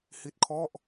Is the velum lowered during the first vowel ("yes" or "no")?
no